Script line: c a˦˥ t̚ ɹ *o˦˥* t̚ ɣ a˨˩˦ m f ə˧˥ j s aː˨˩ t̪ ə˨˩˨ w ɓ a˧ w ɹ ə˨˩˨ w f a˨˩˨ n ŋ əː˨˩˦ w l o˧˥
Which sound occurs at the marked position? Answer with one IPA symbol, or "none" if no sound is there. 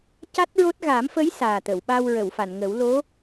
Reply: o˦˥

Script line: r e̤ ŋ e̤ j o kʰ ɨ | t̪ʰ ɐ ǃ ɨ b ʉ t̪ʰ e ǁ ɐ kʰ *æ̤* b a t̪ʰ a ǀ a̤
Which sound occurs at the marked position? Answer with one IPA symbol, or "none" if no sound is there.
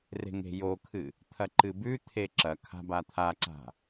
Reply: a̤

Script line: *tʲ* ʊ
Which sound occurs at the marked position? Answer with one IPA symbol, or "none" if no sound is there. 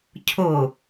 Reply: cʰ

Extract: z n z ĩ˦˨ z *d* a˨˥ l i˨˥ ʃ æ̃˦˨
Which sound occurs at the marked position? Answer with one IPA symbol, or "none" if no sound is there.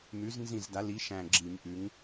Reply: d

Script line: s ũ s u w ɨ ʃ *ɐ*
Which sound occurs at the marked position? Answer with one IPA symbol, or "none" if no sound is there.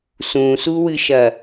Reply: ɐ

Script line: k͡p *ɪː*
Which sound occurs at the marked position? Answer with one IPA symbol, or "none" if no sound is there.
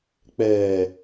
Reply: ɛː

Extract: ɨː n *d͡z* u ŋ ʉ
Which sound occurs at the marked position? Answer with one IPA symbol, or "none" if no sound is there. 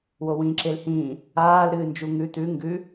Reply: d͡ʒ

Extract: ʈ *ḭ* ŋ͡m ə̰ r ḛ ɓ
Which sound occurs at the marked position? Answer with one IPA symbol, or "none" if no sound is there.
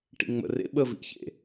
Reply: ḭ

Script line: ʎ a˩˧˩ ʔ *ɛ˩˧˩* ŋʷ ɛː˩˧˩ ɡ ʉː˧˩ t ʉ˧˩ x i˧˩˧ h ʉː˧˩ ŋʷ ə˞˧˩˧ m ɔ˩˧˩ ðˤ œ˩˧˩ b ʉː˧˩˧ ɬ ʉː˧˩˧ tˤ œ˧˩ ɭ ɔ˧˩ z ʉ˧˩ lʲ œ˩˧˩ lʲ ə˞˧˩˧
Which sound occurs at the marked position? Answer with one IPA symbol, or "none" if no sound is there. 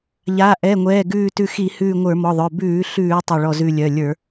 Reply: ɛ˩˧˩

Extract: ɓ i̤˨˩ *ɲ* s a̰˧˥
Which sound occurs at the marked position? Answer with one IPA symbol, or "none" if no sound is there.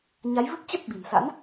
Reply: n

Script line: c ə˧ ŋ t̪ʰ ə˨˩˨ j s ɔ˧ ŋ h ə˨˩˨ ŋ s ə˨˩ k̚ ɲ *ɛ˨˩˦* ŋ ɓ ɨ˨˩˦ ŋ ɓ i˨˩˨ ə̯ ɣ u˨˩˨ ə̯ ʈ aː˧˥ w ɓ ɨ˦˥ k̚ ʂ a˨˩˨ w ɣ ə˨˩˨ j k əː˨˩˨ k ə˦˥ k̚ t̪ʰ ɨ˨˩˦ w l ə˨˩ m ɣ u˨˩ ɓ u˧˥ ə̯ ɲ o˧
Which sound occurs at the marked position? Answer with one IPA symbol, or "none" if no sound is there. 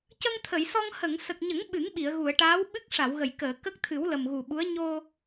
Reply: ə˨˩˦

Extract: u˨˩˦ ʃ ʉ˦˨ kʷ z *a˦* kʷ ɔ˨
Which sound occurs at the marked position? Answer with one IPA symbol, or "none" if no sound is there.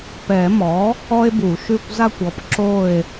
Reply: a˦˨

